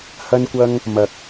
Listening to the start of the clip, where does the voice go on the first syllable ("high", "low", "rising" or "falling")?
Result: high